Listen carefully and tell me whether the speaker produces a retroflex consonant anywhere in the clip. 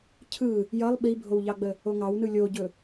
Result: no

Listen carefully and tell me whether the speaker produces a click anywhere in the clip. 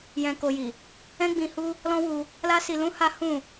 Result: no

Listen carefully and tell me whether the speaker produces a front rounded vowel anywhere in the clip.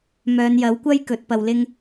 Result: yes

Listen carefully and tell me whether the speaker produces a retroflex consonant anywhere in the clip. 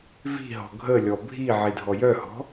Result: no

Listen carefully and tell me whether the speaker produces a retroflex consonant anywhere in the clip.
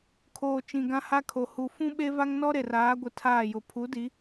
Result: no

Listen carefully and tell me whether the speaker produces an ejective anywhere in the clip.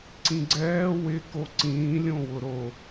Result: no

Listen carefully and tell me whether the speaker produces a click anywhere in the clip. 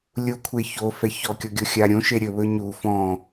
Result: no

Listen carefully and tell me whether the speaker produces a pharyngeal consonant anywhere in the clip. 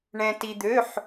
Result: yes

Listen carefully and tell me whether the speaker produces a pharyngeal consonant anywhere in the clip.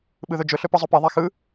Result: no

